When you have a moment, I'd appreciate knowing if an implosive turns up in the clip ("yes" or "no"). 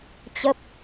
no